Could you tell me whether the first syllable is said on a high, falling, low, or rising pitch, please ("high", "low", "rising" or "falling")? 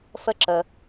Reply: high